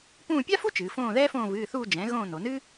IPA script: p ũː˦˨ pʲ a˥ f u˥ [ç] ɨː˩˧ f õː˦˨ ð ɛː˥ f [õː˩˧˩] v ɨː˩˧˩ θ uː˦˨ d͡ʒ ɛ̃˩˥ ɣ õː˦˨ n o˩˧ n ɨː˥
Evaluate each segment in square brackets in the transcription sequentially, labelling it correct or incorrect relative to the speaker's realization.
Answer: incorrect: t͡ʃ, incorrect: õː˦˨

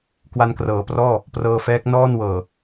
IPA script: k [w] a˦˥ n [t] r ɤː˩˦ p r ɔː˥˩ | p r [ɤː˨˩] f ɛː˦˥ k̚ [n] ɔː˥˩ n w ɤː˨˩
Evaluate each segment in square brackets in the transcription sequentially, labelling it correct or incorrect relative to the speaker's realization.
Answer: correct, incorrect: k, incorrect: ɤː˧, correct

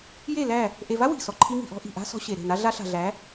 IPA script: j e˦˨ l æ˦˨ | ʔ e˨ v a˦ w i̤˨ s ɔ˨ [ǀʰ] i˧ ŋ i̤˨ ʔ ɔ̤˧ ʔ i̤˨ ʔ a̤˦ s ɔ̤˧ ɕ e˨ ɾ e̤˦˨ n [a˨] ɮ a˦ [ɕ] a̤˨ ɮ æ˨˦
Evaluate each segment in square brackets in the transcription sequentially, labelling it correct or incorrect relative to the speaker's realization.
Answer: incorrect: ǃʰ, incorrect: a˦, incorrect: ɬ

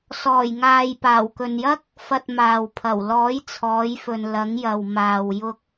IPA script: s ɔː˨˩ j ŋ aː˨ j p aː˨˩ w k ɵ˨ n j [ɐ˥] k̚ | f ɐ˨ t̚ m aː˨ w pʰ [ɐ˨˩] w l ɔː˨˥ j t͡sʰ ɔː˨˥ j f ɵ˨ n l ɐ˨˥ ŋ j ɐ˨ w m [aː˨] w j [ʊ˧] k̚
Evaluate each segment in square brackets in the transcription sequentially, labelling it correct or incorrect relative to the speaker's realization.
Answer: correct, correct, correct, correct

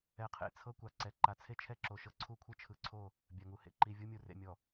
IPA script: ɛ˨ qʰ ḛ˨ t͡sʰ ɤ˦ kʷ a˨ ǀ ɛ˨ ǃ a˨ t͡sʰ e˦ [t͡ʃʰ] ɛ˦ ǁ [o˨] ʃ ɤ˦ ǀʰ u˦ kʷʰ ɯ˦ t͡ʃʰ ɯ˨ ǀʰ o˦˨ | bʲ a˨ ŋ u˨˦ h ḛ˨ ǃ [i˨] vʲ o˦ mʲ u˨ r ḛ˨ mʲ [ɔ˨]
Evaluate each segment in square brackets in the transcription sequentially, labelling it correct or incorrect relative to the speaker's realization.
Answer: correct, correct, correct, correct

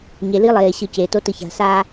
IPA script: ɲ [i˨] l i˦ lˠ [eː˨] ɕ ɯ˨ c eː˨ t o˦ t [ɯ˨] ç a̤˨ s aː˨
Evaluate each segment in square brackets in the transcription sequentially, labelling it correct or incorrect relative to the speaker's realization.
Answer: incorrect: e˨, correct, correct

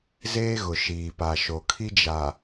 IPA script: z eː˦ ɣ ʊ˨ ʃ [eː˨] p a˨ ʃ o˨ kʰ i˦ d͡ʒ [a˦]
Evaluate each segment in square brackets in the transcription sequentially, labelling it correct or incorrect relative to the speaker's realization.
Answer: incorrect: iː˨, incorrect: a˨

